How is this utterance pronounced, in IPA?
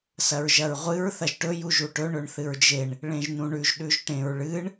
s ɐ ɹ ʒ ɐ ɹ ʁʷ ɨ ɹ θ ɐ ʒ ʈ ɵ j u ʒ u ʈ ɵ ɳ ɵ ɳ θ ɨ ɹ d͡ʒ e ɳ | ɭ ẽ ʒ n ũ ɳ ʉ ʒ ɗ ʉ ʒ ʈ ẽ ɹ ɭ ɨ ɳ

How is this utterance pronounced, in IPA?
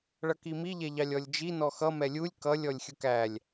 ɭ ʌ k i m i ʎ ɛ ʎ ɑ lʲ ɔ lʲ d͡ʒ i n ɔ x ʌ m ɛ lʲ u lʲ k ʌ lʲ ɔ lʲ xʲ ʊ k æ lʲ

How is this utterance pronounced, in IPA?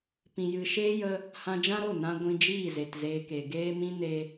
p ĩ˨ j ɨ˨ ʃ eː˦ j ə˧ | h ã˧ d͡ʒ ã˦ ɾ o˦˨ n ã˧ ɡʷ ĩ˧ d͡ʒ iː˦˨ z e˨ t z eː˧ k e˨ ɡ eː˦ m ĩ˦ n e˧

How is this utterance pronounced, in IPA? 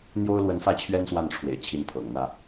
n̪ j o˥ ʊ̯ l w ə˧˥ n f ä˥˩ t͡ɕʰ ɥ ɛ˥ n s w a˥˩ n ʈ͡ʂʰ w ḛ˨˩ ɪ̯ t͡ɕʰ i˧˥ n pʰ ɤ̰˨˩ ŋ n̪ ä˥˩

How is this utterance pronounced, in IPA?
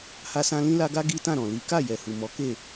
h a˦ s ã˦ l ĩ˦ l a˦ ɡ a˦ ɡ i˦ t ã˦˨ ɾ ɔ̃˨ l i˨˦ k a˦˨ j ɛ˨ h u˨ m ɔ˨˦ k e˦˨

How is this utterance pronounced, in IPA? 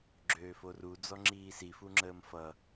ɡ͡ǁ øː f o r u d͡z ɔ ŋ͡ǁ iː s i f u ŋ͡ǁ əː m f ʌ

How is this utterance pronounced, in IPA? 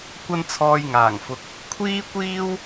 kʷ ɐ˧ n t͡sʰ ɔː˨ j ŋ aː˨˩ ŋ f ʊ˨ k̚ | kʷʰ iː˥ kʷ iː˥ w

